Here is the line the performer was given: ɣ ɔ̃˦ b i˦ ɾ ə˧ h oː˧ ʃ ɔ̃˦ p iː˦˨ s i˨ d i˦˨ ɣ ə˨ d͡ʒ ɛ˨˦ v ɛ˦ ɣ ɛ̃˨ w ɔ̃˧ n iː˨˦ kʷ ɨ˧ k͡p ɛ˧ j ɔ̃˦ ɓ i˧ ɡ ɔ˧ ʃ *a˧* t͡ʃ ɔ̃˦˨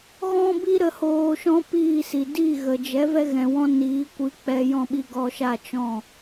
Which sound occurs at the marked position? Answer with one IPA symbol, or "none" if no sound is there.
a˦˨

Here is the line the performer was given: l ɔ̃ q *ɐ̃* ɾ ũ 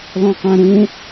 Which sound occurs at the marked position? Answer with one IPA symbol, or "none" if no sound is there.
æ̃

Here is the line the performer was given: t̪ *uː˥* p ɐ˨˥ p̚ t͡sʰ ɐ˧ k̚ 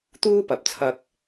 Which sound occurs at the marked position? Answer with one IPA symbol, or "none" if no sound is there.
uː˥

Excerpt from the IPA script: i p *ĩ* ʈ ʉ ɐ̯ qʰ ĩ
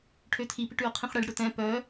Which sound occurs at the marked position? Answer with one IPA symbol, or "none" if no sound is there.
i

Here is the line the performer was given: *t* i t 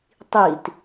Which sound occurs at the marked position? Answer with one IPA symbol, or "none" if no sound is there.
tˤ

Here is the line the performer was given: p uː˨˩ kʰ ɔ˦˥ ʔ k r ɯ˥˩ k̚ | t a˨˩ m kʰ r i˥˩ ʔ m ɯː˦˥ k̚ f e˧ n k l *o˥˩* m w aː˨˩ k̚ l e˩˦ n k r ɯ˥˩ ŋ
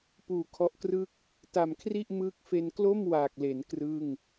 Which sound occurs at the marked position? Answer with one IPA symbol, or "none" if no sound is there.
o˥˩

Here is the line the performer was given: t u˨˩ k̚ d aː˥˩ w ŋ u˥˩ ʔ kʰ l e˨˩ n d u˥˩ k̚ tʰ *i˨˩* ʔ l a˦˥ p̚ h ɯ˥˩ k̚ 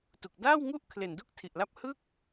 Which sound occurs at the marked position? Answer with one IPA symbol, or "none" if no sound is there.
i˨˩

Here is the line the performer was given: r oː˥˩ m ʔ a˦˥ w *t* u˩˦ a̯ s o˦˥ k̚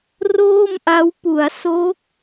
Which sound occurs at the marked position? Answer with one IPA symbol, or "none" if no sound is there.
p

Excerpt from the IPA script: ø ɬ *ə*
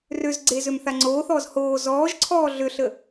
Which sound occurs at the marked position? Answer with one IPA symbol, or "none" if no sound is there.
ə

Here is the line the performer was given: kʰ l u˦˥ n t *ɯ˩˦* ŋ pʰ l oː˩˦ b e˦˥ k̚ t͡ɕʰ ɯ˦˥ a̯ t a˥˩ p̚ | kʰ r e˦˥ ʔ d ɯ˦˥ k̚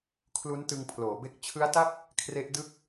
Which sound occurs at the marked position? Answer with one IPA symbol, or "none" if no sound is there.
ɯ˧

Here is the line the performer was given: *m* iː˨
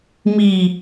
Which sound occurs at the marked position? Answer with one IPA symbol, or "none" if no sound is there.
m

